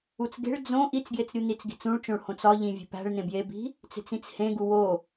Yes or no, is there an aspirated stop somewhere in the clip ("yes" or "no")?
no